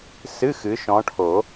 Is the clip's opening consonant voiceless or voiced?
voiceless